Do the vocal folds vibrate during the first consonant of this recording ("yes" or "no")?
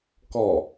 no